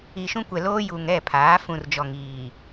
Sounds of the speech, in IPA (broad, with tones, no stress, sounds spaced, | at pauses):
i˨ ʃ ũ˦ kʷ ɛ˨ l oː˦ j uː˨ ŋ ɛ˦˨ pʰ aː˨˦ f ũ˨ r d͡ʒ ɔ˨ ŋ iː˨